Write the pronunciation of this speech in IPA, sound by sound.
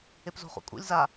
e p z o̤ χ ṵ kʼ ṵ lʲ z a

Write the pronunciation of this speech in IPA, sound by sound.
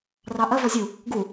r ɑ ʔ ɐ v ɔ zʲ u | ɡ u

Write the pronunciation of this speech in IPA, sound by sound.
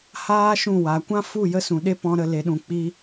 h aː˦ ʃ ũ˦˨ w a˨˦ kʷ ã˦ f u˦˨ j ə˦ s ũ˨ ɗ e˦ p ɔ̃˧ ɾ ə˧ l e˧ ɗ ũ˧ k͡p i˦

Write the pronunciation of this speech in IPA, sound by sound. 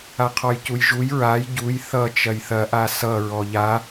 a qʰ ɔ j c u j ʒ u j ɹ a j ɟ u j θ ʌ t͡ʃ ɐ j θ ɐ ʔ a s ʌ ɹ ɔ ʎ a

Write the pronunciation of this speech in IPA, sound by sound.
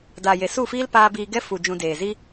d aː˨ j e˨ s u˦˨ f iː˦ l p aː˦ b iː˧ ɡ ɛ˦ f u˨ d͡ʒ ũ˧ d eː˨ z i˦

